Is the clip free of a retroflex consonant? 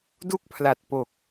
yes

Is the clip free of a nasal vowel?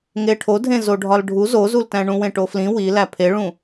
no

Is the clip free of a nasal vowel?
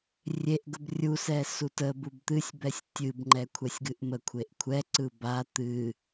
yes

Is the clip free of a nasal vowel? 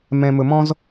no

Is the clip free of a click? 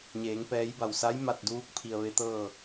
yes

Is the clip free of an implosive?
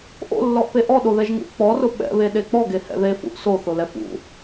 no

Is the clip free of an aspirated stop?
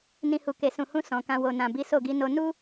yes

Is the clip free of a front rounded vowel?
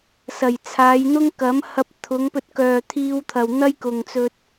no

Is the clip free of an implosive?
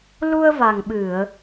no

